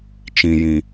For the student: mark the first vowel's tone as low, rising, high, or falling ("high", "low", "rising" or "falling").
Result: low